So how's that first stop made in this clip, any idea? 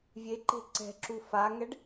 click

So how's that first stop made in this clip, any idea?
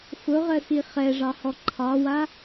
click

